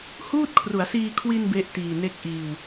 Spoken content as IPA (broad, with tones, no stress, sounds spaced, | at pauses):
h uː˥˩ t̚ kʰ r u˩˦ a̯ s iː˧ kʰ w i˧ n b e˥˩ ʔ t iː˨˩ n e˥˩ k̚ ʔ iː˧ w